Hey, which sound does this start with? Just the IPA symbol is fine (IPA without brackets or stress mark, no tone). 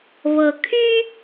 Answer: β